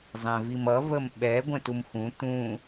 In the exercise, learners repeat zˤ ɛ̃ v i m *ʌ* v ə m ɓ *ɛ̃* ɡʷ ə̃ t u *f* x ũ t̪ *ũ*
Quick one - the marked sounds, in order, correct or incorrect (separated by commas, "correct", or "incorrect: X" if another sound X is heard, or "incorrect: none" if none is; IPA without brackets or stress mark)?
correct, incorrect: ɛ, incorrect: m, correct